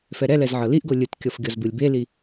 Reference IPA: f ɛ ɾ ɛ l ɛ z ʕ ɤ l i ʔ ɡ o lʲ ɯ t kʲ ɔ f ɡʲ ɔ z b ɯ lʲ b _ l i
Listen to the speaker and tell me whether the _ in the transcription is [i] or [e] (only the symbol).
e